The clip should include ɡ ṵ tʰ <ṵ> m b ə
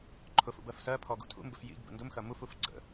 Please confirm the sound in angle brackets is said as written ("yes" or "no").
yes